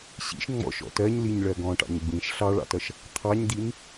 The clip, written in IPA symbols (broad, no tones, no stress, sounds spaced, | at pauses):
ɕ ḭ ʃ ŋ͡m ɔ̰ ʃ ɔ̰ t ɜ ɲ l i ɲ ɭ ɜ ɡ ɔ̃ ʈ ɑ̰ ɲ ɡ͡b ĩ ʃ ɬ ɑ ɭ ɑ̰ t ʌ ʃ | t̪ʰ ɑ ɲ d̪ i n